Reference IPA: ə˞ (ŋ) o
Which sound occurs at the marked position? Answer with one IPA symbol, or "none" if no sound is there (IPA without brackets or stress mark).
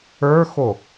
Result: x